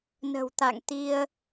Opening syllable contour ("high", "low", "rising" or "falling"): low